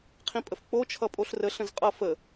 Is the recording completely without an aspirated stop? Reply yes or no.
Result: no